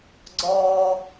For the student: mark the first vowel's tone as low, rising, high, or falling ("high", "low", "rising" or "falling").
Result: low